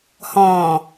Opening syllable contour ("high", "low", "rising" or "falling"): low